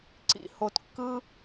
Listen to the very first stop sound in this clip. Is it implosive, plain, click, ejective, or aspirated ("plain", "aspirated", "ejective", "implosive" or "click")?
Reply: click